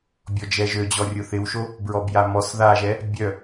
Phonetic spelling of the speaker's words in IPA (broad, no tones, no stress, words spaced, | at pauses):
bʲɔd͡ʒɛʒød͡ʑɔ rʲʊθɪwʃo | bɹɔbjamɔs ðaʒɛ | bʲœ